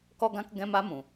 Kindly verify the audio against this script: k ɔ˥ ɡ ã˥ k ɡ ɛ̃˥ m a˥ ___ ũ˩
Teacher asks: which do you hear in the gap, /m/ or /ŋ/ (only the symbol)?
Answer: m